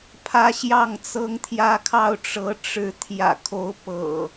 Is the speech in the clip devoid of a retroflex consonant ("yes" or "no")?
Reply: no